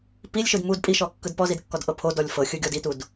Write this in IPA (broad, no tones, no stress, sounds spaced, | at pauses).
p i lʲ ʃ ɯ d m u d pʼ i ʃ ɔ kː ɯ d p ɔ z i d kː ɔ d ʔ ɤ pʰ o d ɔ lʲ f ɤ xʲ ɯ ɡʲ ɔ d i t u d